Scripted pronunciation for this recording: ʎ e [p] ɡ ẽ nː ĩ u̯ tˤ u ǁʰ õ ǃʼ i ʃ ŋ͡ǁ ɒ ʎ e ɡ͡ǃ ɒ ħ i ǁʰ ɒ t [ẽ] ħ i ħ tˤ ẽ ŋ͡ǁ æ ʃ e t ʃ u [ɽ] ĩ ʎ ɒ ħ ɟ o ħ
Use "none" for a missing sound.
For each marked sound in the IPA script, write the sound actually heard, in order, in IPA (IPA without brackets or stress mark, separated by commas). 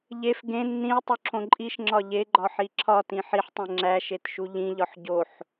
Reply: f, ĩ, ʎ